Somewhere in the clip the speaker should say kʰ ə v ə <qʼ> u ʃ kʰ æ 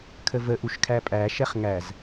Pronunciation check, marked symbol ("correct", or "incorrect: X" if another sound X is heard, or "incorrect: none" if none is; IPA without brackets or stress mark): incorrect: ʔ